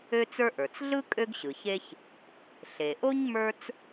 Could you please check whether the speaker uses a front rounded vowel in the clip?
yes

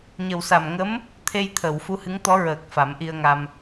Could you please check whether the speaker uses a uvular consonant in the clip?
no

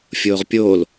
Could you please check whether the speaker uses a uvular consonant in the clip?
yes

